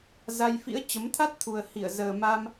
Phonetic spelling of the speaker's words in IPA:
z a˧ j f ḭ˧˥ ə̯ t͡ɕ ə˨˦ m t̪ʰ a˦˥ t̚ t̪ʰ u˨˩ ə̯ h i˧˩ ə̯ z əː˨˩ m a˧ m

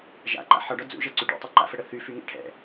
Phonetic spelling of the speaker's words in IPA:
ʒ a̰ ǃ a̰ ħ ɒ ɖ ɒ d͡z ṵ ʒ ɛ ǀ y ɖ ṵ tˤ u ǃ a̰ f ə ɽ ə θ y f y ŋ ɛ̰ ʈʰ ɛ̰

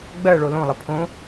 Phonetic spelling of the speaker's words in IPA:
ɡ͡b ɜ ɭ o l õ lˠ ə pʰ õ

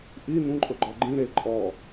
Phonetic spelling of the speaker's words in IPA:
ʔ i n ũ ǃʼ ʊ ɡ͡ǃ ɔ ɡ͡ǃ ĩ ɾ e ǃʼ ɔ

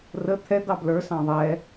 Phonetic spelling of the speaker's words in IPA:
r ə t̪ʰ ɛ d̪ ɑ b l ə˞ s ɑ̃ ðˤ ɛ

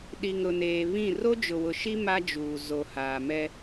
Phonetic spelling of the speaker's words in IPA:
ɗ i˨ ŋ ɾ ʊ˨ n eː˨ β ĩ˦˨ r o˦ d͡ʒ ʊ˨ w ʊ˨ ʃ i˦ m a˦ d͡ʒ uː˨ z o˨ h aː˨ m ɛ˦

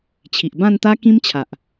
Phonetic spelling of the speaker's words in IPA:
t͡ɕʰ i˨ ʔ b ã˥˧ n t̪ a˦ k ĩ˦ m t͡ɕʰ a˨ ʔ

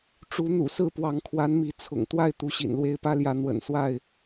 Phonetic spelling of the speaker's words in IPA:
ʈ͡ʂ u˨˦ n̪ ṵ˨˩ s ɹ̩˥˨ p w ɑ˨˦ ŋ kʰ w a˨˦ n m i˨˦ t͡sʰ ʊ̰˨˩ ŋ t̪ w a˥˨ ɪ̯ t̪ u˨˦ ɕ ḭ˨˩ n l w e˥˨ ɪ̯ p ä˦ l j ä˨˦ n̪ w ə̰˨˩ n s w a˥˨ ɪ̯

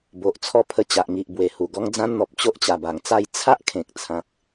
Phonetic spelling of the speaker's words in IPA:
b o˨ ʔ t͡sʰ ɔ˥˧ pʰ ə˧ t͡ɕ a˨ ʔ ŋ i˨ ʔ b w e˨˩ h u˨˩ ɡ ɔ˦ ŋ d͡z ã˧ n n̪ ɔ˨ p̚ t͡ɕ o˦ ʔ t͡ɕ a˨˩ b a˨˩ ŋ t͡s a˥˧ j t͡sʰ a˦ ʔ kʰ ẽ˨ k̚ t͡sʰ ã˨ k̚

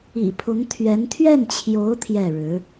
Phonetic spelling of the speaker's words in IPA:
ḭ˨˩ pʰ ʊ˧˥ ŋ t̪ʰ ɥ ɛ˧˥ n t̪ʰ ɥ ɛ˥˩ n t͡ɕʰ j o˧˥ ʊ̯ t̪ʰ j ɛ˥˩ ɻ ɻ̩˧˥

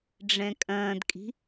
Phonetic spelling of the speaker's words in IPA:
ɖ͡ʐ ɛ̃ kʼ ɐ̃ː d kʼ i̤

